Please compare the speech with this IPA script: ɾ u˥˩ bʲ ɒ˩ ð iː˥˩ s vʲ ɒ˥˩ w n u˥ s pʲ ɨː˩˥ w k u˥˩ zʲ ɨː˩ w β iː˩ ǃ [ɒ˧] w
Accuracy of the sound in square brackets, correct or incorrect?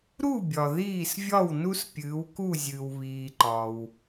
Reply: incorrect